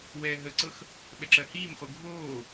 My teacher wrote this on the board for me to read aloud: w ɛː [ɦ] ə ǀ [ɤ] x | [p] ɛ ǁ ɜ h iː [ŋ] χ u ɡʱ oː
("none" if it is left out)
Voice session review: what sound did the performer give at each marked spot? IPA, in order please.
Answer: ɦ, ɤ, ɓ, m

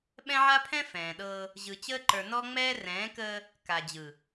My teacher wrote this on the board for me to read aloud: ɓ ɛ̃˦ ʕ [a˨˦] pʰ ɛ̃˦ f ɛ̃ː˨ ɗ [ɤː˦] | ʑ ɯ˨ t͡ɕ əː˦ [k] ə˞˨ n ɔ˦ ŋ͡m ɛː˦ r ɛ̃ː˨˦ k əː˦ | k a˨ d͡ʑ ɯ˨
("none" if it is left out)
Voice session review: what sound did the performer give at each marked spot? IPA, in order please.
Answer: a˦, ɤː˦, ǃ

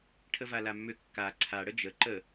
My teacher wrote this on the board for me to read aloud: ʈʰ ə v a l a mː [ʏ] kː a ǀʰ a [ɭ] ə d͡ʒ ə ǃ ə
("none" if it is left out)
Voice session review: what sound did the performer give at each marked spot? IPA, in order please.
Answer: ʏ, ɽ

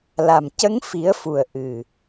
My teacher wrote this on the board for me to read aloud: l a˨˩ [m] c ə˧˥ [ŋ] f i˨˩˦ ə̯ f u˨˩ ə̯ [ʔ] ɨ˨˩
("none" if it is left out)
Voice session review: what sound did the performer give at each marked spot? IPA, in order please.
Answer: m, ŋ, ʔ

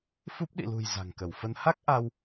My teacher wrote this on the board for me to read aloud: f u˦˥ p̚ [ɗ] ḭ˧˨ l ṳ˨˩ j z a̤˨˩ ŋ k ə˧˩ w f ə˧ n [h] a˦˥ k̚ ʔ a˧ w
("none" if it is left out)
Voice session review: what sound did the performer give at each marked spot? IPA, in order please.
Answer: ɗ, h

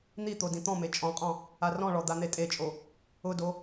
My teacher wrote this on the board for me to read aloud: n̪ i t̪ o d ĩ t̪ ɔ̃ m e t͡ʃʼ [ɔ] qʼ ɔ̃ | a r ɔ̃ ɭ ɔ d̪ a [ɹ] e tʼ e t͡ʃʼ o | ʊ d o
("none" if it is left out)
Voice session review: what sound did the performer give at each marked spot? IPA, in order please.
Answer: ɔ̃, n̪

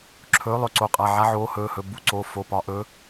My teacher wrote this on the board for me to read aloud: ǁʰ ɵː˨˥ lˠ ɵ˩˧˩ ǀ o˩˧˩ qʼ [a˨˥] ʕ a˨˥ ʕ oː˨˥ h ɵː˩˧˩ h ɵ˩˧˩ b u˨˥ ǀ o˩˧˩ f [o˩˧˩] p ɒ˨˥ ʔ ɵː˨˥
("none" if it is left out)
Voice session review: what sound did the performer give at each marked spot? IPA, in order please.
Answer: a˩˧˩, o˩˧˩

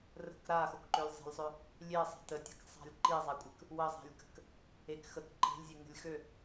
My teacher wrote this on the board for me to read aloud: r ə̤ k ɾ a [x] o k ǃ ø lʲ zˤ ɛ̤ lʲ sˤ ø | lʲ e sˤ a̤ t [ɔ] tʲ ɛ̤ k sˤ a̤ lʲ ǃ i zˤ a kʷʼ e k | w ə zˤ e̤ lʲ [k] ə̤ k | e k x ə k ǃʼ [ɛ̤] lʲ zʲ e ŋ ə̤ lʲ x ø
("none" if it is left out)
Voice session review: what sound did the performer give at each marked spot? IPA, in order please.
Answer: x, ə, k, e̤

